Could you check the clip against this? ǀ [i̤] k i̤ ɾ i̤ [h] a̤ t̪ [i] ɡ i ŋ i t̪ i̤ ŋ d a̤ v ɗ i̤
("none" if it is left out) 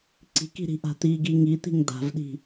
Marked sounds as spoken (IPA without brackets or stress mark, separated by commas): i̤, ʔ, i